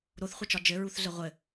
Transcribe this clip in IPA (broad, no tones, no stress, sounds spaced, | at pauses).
ɾ o θ χʷ ɘ t͡ʃ ɒ d͡ʒ ɘ ɹ u θ ɮ ɘ ʁʷ ɘ